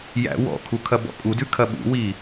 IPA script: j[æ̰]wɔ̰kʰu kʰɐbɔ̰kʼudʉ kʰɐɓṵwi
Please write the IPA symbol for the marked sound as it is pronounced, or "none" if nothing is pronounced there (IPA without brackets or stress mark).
æ̰